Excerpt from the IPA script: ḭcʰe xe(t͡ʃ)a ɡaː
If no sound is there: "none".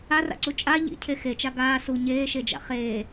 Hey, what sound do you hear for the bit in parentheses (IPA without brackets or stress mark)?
t͡ʃ